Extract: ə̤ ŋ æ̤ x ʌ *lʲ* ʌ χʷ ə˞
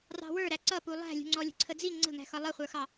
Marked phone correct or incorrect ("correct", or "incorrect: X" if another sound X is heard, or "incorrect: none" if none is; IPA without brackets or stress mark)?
incorrect: lˠ